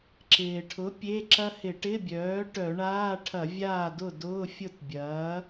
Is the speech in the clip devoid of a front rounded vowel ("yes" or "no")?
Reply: no